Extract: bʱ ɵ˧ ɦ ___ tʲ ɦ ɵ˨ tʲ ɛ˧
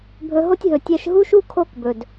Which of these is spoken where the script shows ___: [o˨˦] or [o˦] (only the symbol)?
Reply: o˦